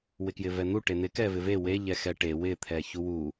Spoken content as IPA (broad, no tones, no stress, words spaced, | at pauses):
wɪkjɪvɛn̪u ʈen̪ɪ kɛvɪve we ʎɛxɛʈe wɪ t̪ʰɛçuwu